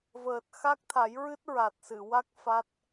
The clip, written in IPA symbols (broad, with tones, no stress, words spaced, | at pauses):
vəː˨˩t̚ xa˦˥k̚t̪ʰa˨˩˦jɹɨ˦˥t̚ ɹa˨˩t̚sɨ˨˩˨wa˦˥k̚ fa˦˥t̚